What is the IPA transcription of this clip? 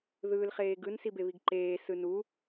ðɯːlχeːɡɯn sibeβiɡǃeː sɯnu

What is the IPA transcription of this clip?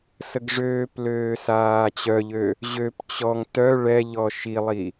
səɡʐøːpløː saːt͡ɕœʎø | ʑøp t͡ɕɔŋ tœ ɭɛʎɔ ʃilˠi

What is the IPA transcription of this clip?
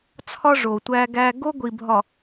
t͡sʰɒ˦ ʐo˨tʷæ˦ɡæ˦ ɡo˦ɡʷi˨bʱɒ˨

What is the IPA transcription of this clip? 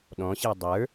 ɗɔ̃ɕe dˤə˞

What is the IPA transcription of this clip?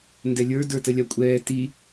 ndɛlʲə˞ də˞təlʲakʷʼɛː ti

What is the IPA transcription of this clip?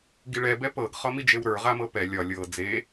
ɡiɭɛ bɛpɤɡ χɒmid͡ʒewɾə˞ ʁamɤpɛ lʲɒ lʲɤ d͡ze

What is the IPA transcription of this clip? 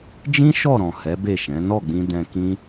d͡ʒĩ˦ ʃɔ˦˨ɾɔ̃˨ hɛ˨˦be˦˨ʃɛ̃˨˦ nɔ˦˨ɡ͡bĩ˧ dɛ̃˧kĩ˦

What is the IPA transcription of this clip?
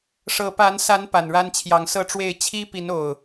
ʂɤ˨˦ pa˨˦n sa˨˦n pa˨˩nɻa˦nt͡ɕʰjɑ˨˦ŋ sɤ˥˨ʈ͡ʂwe˥˨ɪ̯ t͡ɕʰi˦pi˨˦n o˨˩ʊ̯

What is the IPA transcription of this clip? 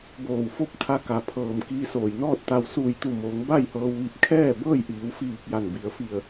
boː˧˩wfo˥˨p̚ t̪ʰa˧ka˩pʰɤː˩m kiː˧soː˩j nɔː˥˨t̚ t̪a˧w suː˧˩jt̪u˧˩moː˩˧ŋ ba˥˨jhɤː˧wʋi˧˩p̚ kʰɛː˥˨bɤː˥˨j ʔiː˩˧wfiː˧˩k̚ ja˧˩nbi˩˧ə̯ fi˧˩ə̯

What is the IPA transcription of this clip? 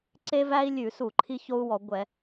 ǀe˥væ˥i̯lʲʉ˧˩˧su˧˩˧ ǃʰi˥ço˥u̯wɔ˧˩˧ ɡʷɛ˧˩˧

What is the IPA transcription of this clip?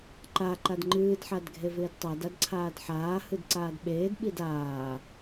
ǃa ǃadŋ͡ǃɨːd ħadɡʱevɪːdtˤad adǀʰaːdħaː hɨdǀaːdɓeːd ɓidaː

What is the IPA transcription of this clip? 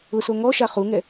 ʊso ŋɔʃa χuŋɛ

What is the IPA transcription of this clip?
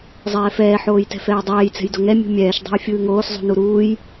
zˤɛːfɛː ħoːjtɛ̤fɛːdˤɛːj t͡sɛ̤jdoŋɛ mʲṳmʲɛːʃ dˤɛ̤jfʲɯːŋoːs zˤṳnuɾuːj

